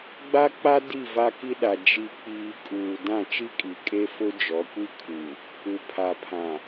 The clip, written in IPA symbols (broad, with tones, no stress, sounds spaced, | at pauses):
ɡ͡b a˦ k͡p a˦ d i˦˨ v a˦ k i˦ ɗ a˨ d͡ʒ i˨ k͡p iː˨ kʼ uː˨ d ã˦˨ t͡ʃ i˦ kʼ i˨ kʼ e˦ f ʊ˦ d͡ʒ ɔ˨˦ kʷ i˦ kʰ u˨ | u˨ pʰ a˨ pʰ ã˨